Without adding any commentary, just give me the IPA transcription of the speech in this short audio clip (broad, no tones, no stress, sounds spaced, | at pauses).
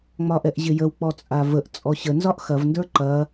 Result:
ŋ͡m ɒ ʔ ɛ ʔ ʑ ɪ j ə w k͡p ɔ t͡sʼ a v ə ʔ t͡sʼ ɔ ɕ ə n z ɒ ʔ x ɐ v n d ə˞ ǃ ɐ